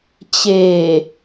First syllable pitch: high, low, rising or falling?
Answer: low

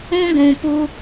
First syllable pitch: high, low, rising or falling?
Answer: high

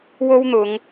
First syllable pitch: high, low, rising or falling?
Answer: high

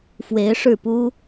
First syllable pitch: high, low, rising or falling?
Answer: rising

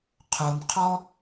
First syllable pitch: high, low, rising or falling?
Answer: low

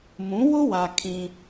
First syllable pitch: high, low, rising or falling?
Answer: rising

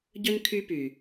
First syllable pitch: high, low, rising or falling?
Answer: high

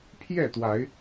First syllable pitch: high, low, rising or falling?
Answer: falling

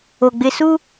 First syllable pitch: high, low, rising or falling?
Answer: low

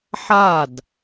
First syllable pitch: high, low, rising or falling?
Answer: falling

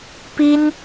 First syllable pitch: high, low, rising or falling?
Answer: high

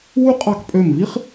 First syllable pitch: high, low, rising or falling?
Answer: high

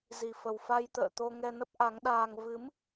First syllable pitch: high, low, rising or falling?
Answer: low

